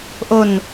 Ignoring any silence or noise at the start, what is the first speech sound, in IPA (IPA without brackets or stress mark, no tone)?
ʔ